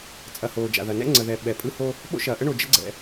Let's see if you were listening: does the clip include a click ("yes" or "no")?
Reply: yes